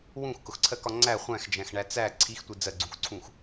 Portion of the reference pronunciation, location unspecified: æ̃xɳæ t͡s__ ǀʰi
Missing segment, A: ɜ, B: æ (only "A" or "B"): B